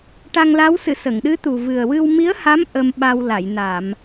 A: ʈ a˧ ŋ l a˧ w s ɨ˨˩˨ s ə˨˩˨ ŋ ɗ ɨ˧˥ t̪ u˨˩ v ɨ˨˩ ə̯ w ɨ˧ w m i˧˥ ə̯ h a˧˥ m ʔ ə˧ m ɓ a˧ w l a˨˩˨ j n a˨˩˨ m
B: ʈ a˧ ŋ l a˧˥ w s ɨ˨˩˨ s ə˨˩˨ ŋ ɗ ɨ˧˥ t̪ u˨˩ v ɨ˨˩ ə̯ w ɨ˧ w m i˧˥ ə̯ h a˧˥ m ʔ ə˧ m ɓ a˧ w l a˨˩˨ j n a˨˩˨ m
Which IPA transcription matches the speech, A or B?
B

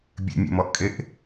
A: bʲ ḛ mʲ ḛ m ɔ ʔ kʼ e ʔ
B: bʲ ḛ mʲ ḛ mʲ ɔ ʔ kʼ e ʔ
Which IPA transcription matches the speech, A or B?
A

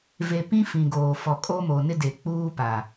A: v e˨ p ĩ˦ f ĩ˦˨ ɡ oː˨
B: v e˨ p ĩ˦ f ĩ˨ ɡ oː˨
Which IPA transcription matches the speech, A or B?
B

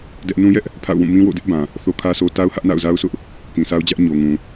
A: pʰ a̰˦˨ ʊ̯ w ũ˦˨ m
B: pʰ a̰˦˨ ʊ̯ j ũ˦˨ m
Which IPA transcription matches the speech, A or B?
A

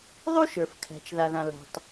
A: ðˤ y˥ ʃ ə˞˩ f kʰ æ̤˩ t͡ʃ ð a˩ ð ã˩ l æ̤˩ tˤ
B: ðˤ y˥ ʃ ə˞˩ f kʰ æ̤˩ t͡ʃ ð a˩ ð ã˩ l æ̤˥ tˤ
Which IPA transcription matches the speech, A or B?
A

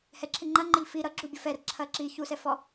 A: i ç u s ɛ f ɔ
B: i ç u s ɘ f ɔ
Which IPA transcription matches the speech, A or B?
A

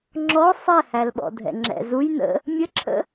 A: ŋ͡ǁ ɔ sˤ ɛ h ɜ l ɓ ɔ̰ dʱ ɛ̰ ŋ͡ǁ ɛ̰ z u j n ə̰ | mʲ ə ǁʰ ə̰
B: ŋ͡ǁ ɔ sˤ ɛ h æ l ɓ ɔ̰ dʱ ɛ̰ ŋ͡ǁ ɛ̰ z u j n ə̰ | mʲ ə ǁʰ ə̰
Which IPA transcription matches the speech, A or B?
B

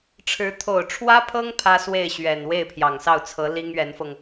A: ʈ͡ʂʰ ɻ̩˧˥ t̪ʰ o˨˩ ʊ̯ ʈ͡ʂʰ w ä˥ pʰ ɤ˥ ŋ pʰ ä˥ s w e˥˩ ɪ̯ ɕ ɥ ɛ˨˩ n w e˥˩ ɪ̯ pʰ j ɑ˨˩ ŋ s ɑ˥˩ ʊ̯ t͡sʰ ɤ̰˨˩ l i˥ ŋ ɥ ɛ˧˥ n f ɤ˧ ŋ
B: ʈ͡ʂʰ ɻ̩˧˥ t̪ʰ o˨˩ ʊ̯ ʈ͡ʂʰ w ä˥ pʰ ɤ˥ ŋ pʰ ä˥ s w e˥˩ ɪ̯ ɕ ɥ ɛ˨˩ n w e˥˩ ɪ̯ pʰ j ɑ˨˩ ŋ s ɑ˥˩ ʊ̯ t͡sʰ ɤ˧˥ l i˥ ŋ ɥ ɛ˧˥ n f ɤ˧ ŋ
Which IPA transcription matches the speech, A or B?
B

